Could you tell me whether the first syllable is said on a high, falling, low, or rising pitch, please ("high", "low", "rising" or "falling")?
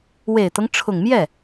low